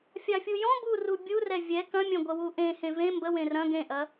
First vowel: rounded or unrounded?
unrounded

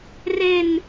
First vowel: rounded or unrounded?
unrounded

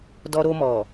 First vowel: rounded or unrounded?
rounded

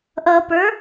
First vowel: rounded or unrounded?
unrounded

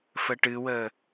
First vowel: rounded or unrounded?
unrounded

